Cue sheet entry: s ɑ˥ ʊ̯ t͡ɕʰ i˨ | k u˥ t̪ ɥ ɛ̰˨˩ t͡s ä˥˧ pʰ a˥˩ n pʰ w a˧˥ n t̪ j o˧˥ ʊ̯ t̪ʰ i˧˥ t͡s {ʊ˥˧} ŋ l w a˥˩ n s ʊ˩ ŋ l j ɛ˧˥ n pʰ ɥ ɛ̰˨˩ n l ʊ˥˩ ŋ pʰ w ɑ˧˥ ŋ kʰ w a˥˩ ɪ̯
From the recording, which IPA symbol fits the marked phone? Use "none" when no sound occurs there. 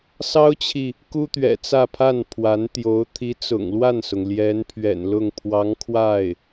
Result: ʊ̰˨˩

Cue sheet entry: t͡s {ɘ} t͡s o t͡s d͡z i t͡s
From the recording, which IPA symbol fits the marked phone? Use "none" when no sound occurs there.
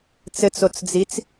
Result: ɘ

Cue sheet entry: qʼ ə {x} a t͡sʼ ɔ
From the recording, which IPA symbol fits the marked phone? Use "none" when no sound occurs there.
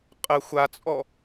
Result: xʷ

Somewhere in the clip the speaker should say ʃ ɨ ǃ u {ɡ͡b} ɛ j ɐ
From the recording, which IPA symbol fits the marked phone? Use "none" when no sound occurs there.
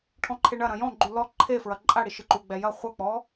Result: ɡ͡b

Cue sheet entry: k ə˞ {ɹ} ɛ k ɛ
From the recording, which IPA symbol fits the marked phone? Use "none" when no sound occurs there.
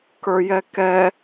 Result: j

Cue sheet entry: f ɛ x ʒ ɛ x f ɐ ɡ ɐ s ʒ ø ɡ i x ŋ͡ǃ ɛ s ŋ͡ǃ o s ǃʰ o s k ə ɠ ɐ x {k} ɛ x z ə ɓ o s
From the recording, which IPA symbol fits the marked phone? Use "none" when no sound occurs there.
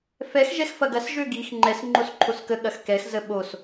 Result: k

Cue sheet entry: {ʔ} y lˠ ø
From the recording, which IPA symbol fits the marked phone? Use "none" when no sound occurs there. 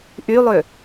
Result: ʔ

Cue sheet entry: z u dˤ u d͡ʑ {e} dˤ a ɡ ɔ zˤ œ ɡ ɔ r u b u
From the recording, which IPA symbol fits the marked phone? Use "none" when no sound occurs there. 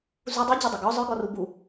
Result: e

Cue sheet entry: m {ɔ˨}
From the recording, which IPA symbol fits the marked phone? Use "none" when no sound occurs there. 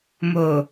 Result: o˨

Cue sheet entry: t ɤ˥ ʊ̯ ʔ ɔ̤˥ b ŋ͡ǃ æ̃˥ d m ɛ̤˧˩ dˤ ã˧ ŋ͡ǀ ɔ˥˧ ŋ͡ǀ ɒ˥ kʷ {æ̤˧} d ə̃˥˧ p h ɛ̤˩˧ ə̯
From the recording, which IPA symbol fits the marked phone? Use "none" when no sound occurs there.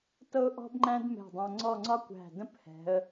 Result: æ̤˧˩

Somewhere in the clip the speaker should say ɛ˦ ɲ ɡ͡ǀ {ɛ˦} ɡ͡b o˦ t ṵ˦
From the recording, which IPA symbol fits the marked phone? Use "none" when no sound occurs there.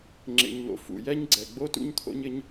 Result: ɛ˨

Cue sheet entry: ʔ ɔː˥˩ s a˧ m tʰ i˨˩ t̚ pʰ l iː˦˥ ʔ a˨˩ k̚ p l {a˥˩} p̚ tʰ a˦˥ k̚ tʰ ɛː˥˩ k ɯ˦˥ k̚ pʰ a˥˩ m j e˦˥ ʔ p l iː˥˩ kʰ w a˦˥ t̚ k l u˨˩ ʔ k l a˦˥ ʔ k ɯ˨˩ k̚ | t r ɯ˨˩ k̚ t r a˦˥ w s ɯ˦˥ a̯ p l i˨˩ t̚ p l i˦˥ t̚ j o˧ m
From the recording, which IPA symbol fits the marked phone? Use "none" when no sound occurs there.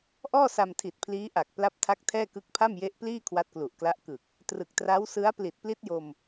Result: a˦˥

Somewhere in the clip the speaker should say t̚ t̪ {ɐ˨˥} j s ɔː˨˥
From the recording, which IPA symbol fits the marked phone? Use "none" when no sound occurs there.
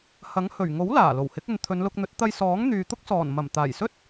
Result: ɐ˧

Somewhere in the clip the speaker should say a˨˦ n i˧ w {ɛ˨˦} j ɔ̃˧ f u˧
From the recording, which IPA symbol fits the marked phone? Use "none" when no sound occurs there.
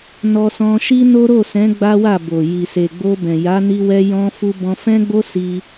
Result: ɛ˧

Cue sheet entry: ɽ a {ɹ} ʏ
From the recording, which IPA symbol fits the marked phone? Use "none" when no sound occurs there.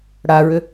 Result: ɹ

